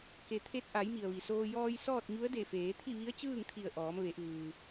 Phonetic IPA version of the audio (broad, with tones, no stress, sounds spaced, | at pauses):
k e˩˧ t̪ʰ e˧ t̚ ʔ a˩˧ j m i˩ ə̯ ʋ i˩ s oː˧ j ɔː˧ j s ɔː˥˨ t̚ ɲ u˧˥ ə̯ d e˧˩ f eː˩˧ t̪ʰ i˥˨ ʋ i˧˥ ə̯ t͡ɕ ɯː˥˨ ŋ t̪ʰ i˧˩ ə̯ ʔ ɔː˩˧ m ʋ e˩˧ ʔ ɯː˩